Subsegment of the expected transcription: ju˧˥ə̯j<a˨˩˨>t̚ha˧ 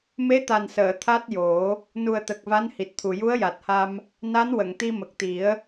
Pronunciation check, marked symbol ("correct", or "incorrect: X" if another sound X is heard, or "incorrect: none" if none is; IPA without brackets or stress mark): incorrect: a˨˩